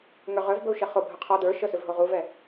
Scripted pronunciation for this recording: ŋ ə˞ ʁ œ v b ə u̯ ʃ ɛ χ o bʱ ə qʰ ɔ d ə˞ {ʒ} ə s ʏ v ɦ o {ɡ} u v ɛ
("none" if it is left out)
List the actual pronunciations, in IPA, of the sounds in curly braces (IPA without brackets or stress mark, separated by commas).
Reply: ʃ, ʁ